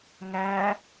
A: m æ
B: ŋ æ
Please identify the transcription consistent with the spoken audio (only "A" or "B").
B